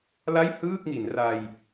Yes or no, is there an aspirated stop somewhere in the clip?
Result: no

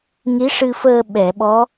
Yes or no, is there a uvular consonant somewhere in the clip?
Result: no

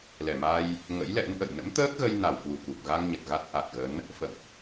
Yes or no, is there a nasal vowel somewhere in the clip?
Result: no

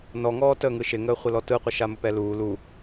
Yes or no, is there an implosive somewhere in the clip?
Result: no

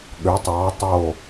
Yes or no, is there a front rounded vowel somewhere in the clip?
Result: yes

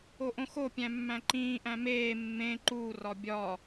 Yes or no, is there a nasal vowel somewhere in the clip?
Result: yes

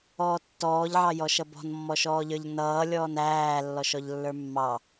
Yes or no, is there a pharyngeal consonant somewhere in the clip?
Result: yes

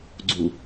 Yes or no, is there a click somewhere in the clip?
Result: yes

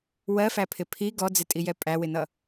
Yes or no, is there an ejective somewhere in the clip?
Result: yes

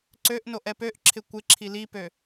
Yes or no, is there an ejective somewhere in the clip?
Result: no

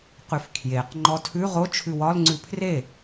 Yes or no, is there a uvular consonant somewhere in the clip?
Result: yes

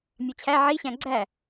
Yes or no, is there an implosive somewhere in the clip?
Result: no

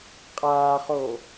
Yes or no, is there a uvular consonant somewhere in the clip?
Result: yes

